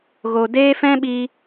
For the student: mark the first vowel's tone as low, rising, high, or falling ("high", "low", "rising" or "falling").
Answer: low